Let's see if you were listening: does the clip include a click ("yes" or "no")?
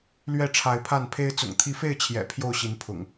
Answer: no